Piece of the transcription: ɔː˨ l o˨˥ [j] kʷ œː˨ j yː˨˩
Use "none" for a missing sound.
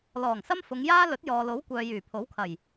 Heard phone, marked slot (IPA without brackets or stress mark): w